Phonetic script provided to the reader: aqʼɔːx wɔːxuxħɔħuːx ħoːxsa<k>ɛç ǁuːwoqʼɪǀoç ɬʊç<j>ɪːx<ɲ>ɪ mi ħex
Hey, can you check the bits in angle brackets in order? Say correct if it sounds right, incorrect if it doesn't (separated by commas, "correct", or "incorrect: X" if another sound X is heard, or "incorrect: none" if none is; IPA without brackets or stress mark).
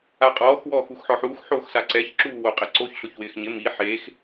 incorrect: ǀ, incorrect: w, correct